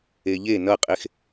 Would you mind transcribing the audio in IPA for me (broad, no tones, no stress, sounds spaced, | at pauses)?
e ʎ e n ʌ qʼ e x